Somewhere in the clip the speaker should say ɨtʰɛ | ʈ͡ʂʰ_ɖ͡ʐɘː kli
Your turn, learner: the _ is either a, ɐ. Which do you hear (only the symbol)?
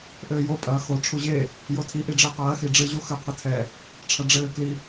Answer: ɐ